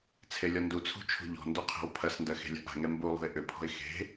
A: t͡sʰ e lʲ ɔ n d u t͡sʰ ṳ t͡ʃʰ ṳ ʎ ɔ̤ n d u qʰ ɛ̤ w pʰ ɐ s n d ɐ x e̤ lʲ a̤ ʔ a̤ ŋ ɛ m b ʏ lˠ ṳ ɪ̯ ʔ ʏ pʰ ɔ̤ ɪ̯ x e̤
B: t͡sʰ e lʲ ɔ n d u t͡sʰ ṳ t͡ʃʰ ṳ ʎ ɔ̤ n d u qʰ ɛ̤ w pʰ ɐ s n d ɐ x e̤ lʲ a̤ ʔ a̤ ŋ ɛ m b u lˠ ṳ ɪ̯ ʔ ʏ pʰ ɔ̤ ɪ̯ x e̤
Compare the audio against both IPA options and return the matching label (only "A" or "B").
B